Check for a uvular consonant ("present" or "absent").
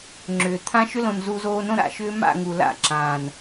absent